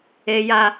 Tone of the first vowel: high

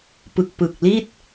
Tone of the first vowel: low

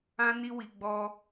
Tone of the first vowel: high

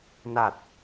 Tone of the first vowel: low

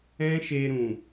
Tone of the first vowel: high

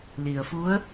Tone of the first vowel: low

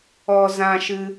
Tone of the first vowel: high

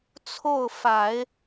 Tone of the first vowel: falling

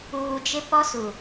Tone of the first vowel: low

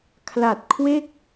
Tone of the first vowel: low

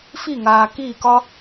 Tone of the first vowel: falling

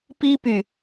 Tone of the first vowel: high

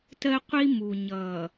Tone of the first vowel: high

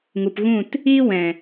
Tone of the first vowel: low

